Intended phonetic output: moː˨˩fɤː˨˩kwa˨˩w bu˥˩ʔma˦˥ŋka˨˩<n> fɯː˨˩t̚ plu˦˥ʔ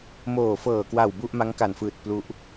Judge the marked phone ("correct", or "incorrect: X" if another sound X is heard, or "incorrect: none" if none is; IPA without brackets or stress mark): correct